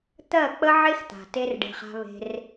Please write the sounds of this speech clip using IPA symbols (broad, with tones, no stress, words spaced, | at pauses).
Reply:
t̪ɜ˦˨k͡pə˦ʕe˦xt̪a̤˨ te˦rɖe̤˧χa̤˦βe̤˦r